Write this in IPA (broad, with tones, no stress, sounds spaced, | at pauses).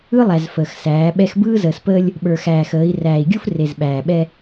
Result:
ɯ˦ lˠ æ˨ z f əː˨ x s æː˨˦ ɓ ɛ˦ x b ɯː˦ z əː˨ s p əː˦ lʲ | ɓ ə˞˨ x æː˨ x əː˨˦ i̯ r æː˨ i̯ ɡʲ u˦ f r e˨ z ɓ æː˨ ɓ ɛ˦